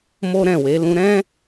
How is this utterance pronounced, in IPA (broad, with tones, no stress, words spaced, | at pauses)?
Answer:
mo˦ɾɛ̃˦˨we˨˦ lũ˧ɾɛ̃˦